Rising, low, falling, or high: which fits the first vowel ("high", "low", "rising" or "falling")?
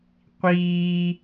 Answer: high